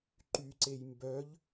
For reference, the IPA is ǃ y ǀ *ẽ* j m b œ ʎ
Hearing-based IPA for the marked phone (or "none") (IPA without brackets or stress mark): e